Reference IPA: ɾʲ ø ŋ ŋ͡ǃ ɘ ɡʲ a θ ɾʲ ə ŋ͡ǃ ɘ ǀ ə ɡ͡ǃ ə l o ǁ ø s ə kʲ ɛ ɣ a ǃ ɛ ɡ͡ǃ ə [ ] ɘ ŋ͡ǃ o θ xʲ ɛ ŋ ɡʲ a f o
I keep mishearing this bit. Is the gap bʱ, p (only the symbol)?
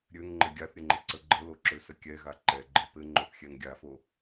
p